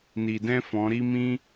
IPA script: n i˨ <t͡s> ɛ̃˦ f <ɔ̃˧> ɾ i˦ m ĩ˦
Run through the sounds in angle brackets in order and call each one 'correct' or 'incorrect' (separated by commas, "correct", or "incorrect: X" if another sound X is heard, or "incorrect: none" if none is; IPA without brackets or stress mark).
incorrect: d, incorrect: ɔ̃˨˦